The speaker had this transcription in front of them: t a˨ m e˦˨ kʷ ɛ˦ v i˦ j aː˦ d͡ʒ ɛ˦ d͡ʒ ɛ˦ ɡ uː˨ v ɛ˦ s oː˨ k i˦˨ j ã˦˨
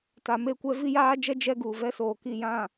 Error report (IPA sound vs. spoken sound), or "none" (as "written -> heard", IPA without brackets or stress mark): none